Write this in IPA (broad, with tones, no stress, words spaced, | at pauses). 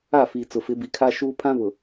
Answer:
a˦˨fi˨ t͡sʊ˨fɪ˨˦ bi˨kʰa˦ ʃuː˦ pʰã˦βʊ˨